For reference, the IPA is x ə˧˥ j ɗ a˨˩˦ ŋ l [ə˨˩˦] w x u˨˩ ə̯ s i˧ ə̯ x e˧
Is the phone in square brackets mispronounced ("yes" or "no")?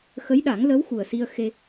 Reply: yes